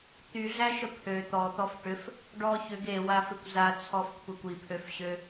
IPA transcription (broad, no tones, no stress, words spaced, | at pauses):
t̪yɮæʃə pʰø t̪ɔt̪ɔf ʈʏf | ɖɔ çʏɡ ewafʏkʷ zat͡sʰɔfkʷʰekʷ ipʰøfɕø